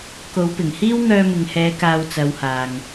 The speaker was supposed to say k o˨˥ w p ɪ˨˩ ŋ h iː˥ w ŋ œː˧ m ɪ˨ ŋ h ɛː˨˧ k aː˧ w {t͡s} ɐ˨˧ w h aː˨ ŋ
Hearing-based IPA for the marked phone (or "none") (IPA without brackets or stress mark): t͡s